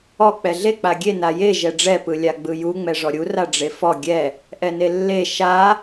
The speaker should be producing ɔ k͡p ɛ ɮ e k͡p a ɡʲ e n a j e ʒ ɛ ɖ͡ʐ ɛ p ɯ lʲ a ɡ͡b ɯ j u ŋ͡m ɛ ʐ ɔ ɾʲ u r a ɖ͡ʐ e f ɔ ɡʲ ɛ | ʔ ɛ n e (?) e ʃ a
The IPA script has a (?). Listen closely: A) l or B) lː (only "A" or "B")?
B